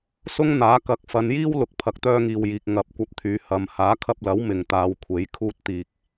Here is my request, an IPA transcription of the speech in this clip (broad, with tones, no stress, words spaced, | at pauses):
sʊ˥ŋn̪aː˨˥ kɐ˨˥k̚ fɐ˨˧njiː˥wlʊ˨k̚ pʰɐ˨k̚t̪œː˧ŋiː˨wjiː˨k̚ ŋɐ˨˥p̚kʷɐ˧p̚t̪ʰyː˨˧ hɐ˨˧m haː˨˥kʰɐ˧p̚lɐ˨˥w mɪ˨ŋt̪aː˨˧wkʷʰe˨˥j kʰuː˧t̚t̪iː˨k̚